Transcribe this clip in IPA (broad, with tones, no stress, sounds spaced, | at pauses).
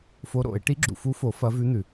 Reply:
f o˧˥ ɾ o̰˨˩˦ ɪ̯ ʈ i˧˥ ɡ͡ǁ ṵ˨ f u˧˥ f o˨˩˦ f ɐ˧˥ v ʉ˧˥ n̪ ʉ˨